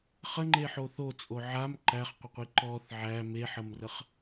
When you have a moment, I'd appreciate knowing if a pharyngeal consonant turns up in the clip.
yes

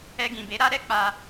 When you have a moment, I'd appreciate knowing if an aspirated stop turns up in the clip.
no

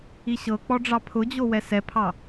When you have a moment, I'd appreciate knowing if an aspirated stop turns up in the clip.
yes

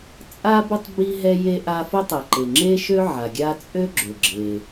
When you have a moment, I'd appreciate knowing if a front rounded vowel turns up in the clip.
yes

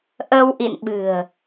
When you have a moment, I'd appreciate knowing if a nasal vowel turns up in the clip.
no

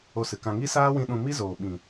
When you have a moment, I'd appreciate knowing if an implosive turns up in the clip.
yes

